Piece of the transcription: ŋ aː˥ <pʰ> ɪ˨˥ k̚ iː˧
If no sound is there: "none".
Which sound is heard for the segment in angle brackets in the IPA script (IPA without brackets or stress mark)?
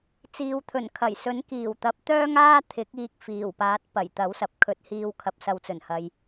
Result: t̪ʰ